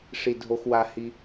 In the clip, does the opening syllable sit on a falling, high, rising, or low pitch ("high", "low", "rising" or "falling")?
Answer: low